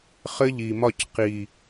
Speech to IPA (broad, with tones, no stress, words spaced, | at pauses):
χɘ˦ʎi˨mɒ˦˨c qi˨